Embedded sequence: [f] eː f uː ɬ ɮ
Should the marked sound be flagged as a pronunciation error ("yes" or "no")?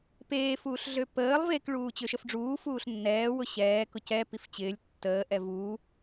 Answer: yes